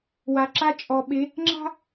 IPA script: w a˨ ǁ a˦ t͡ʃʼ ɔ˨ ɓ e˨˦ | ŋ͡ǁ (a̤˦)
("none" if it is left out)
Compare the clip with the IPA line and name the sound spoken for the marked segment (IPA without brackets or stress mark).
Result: a̤˦